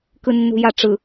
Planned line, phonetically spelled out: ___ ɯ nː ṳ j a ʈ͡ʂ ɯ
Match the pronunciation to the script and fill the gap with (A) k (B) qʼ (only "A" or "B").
A